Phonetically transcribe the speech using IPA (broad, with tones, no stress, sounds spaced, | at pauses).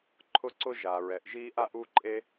ǃʰ ʊ˥ ǀ ʊ˥ ʒ a˩ ɹ ɛ˩ ʔ ʒ iː˥ ʔ a˥ ʔ u˥ ǃʼ e˥